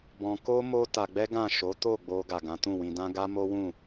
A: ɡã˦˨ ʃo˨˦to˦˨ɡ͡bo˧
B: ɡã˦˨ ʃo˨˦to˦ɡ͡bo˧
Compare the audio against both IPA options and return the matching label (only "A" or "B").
A